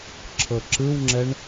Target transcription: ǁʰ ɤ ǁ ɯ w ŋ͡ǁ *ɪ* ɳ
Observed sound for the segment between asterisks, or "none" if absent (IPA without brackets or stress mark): ɛ